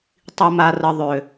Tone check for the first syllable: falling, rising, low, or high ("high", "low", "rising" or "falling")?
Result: low